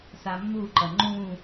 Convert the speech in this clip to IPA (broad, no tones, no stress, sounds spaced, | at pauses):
s a mː u ǃ ʌ ŋ͡ǃ ũ